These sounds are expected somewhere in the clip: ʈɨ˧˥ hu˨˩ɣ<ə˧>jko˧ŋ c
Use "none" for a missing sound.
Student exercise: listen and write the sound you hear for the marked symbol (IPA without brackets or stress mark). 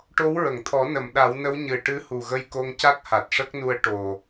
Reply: ə˧